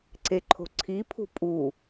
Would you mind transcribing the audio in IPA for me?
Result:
ǀeǃʰo̤ǀʰipʰṳ pʼu

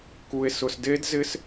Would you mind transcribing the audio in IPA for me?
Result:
ku˨e̯sʊ˨s de˦˥dzɪ˦˥s

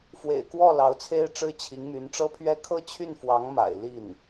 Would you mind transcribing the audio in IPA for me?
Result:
fwḛ˨˩ɪ̯kwɔ˥˩ lɑ˧˥ʊ̯t͡sʰe˥ɪ̯ʈ͡ʂɻ̩˥ t͡ɕʰi˧˥ŋmy˧˥nʈ͡ʂɤ˥pʰɥɛ˥ kʰɤ˥˧t͡ɕʰy˥˩n fwɑ˧˥ŋma̰˨˩ɪ̯ li˥˩n

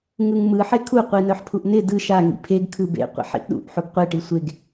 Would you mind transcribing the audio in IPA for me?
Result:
ŋɯŋmɯ ħekʰu qʷinœħpʰuʔnɪ dɯ ʃa ŋḭpʰeɡ kʰɯbḛ qʷḭħḭʔɗṵʔ ħuɡqʷe ʈisʷeɡ

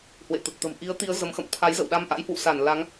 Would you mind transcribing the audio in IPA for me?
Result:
hwḛ˧˨t̪ə˨˩t̚t̪ə̤˨˩m ʔi˨˦ə̯t̪i˨˦ə̯ zə˨˦mxə̰˧˨m t̪ʰa˨˦jzə̰˧˨wɗa˧m ʔa̰˧˥jhwṵ˧˨sa˧˩n la˨˦ŋ

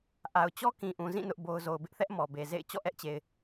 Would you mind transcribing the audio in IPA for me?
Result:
ʔa˨ʊ̯t͡ɕɔ˦kĩ˨ ʔũ˨zĩ˦˨ nʊ˦ʔbo˦ʊ̯ zo˨ʊ̯bɪ˦ʔθɛ˦ʔ mɔ˨be˨zḛ˦˨ɪ̯ t͡ɕɔ̰˦˨ʔɛ˦ʔt͡ɕe˨ɪ̯

